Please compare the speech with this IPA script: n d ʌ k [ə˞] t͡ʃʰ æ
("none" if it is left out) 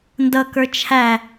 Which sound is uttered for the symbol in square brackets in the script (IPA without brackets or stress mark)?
ə˞